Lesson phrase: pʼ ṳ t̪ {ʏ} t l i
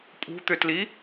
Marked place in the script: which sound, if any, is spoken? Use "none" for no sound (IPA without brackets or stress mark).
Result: ʏ